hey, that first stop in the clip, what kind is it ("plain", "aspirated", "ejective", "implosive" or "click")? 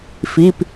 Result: plain